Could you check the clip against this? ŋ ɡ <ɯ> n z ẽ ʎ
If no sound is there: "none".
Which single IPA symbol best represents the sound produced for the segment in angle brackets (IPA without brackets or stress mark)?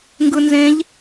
ɯ